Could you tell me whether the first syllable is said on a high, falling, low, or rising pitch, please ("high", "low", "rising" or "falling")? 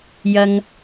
low